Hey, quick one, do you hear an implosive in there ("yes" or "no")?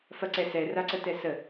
no